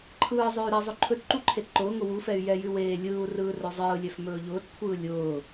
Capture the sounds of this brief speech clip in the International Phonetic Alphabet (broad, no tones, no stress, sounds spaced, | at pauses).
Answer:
ǃʰ ɯː zˤ ɵː y̯ ɾ ɛ zˤ ɵ ǃʰ ɵ t ǃ u ǃʰ e t ǃ ʊː ŋ ʊ w u f ɛ y̯ j ɛ j ʉ w eː lʲ ɯː u̯ r ɯː r ɵ zˤ ɯː lʲ ɛ f m ɵː ʎ ʊː t kʷʰ ɯː lʲ ʊː